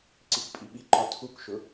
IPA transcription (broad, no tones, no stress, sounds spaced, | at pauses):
ǀ i k pʼ i ɓ i ǃ ɔ tʰ u k ʃ ʊ